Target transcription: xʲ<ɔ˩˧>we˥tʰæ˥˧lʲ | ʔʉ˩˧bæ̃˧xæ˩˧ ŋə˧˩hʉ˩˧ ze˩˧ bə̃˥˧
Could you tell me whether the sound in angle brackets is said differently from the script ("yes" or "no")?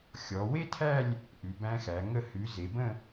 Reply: no